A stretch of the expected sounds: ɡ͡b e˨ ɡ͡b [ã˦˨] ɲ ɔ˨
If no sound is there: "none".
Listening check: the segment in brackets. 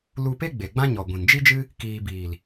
ã˦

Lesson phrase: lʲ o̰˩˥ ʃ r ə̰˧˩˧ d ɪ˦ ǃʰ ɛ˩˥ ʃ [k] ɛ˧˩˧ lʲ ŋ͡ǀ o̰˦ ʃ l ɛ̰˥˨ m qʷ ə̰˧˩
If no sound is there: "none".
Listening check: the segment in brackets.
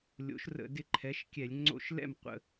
kʲ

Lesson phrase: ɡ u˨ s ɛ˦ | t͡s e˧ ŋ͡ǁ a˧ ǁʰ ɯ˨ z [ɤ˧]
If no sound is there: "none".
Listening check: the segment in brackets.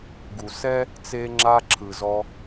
ɔ˧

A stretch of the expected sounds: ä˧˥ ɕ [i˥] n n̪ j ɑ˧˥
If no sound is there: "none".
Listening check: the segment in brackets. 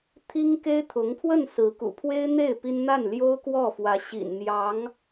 ḭ˨˩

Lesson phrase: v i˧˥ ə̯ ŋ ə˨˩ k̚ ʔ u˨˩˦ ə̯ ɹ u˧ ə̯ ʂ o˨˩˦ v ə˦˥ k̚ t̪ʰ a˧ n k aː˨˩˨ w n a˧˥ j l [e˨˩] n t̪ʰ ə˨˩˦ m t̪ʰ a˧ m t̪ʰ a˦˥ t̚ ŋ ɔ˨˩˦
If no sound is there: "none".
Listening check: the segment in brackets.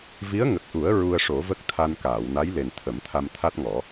e˨˩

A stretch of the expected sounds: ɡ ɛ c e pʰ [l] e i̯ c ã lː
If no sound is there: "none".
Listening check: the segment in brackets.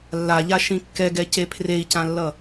r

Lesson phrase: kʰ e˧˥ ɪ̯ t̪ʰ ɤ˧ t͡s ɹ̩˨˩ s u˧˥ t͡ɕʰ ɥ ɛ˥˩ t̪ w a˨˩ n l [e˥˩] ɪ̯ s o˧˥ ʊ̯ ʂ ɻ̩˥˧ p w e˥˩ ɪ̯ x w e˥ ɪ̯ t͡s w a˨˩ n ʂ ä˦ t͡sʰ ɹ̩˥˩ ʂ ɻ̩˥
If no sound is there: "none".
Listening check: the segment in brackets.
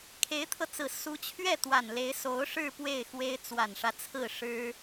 e˧˥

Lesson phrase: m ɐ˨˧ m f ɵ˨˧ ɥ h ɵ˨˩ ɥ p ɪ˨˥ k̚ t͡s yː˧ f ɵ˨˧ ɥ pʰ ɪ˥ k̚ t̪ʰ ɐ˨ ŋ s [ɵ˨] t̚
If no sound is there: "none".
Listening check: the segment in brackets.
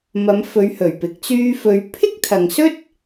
ɵ˥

